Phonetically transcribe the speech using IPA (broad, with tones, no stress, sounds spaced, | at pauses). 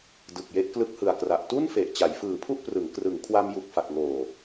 d ɯ˨˩ k̚ j e˦˥ ʔ k l ɯ˦˥ k̚ h ɯ˨˩ a̯ k r a˨˩ ʔ t u˥˩ n f e˨˩ ʔ t͡ɕ a˩˦ j f ɯː˨˩ pʰ u˥˩ ʔ p r ɯ˩˦ ŋ k r ɯ˩˦ ŋ kʰ w a˧ m j u˨˩ k̚ f a˨˩ k̚ ŋ oː˨˩